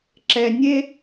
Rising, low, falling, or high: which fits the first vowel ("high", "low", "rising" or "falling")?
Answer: low